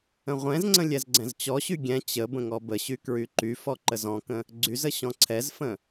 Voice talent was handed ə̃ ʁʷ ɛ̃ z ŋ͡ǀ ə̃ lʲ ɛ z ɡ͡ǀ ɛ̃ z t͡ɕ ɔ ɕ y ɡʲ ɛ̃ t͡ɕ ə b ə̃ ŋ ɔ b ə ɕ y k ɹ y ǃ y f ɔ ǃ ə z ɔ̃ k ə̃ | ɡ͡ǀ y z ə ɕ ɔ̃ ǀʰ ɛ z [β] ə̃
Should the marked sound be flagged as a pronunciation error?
yes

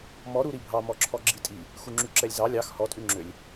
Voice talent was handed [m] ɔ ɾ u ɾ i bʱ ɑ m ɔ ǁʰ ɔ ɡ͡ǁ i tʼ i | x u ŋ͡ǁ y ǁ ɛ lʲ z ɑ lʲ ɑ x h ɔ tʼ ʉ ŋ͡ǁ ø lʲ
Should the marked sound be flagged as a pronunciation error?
no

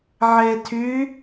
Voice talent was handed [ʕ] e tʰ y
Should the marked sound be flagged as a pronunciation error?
no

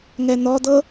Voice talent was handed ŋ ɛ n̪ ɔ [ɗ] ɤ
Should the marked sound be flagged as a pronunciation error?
yes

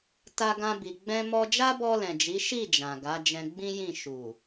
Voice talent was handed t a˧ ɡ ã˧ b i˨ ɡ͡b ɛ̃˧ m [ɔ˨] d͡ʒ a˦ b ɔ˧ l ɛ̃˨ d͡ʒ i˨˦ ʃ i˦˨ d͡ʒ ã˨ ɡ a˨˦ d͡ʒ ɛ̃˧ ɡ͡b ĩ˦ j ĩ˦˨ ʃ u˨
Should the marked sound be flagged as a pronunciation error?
yes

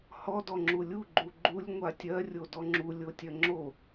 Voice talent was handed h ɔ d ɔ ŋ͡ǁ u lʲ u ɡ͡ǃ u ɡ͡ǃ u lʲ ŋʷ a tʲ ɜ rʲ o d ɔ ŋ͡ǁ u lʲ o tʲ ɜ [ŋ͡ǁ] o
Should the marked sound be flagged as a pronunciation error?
no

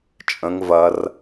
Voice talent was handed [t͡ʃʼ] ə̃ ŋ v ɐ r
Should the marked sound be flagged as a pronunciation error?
no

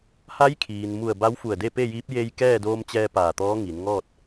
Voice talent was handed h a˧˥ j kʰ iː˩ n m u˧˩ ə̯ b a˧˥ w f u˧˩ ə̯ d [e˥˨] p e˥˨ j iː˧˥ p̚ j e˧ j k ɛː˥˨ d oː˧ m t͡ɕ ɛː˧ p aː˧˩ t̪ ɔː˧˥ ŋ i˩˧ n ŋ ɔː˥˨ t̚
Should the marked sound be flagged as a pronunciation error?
no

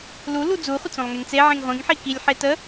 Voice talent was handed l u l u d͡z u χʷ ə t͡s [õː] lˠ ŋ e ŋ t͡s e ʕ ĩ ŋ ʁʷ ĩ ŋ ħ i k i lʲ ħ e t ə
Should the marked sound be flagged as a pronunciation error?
yes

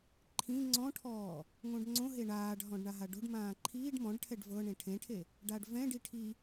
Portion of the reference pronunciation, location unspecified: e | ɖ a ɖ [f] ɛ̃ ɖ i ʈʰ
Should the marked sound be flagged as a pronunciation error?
yes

